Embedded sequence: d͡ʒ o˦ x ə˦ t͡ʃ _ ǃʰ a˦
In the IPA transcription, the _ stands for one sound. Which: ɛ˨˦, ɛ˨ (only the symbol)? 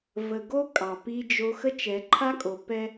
ɛ˨˦